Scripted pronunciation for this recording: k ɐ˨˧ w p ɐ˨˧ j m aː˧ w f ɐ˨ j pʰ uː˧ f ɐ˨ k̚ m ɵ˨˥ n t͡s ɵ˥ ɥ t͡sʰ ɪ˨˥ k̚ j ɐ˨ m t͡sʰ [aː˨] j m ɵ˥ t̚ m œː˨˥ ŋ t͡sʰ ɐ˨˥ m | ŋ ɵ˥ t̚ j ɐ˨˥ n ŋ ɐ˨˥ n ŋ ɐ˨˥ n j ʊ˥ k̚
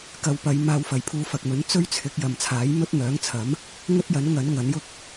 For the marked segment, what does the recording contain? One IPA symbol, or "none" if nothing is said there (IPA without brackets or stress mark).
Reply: aː˨˥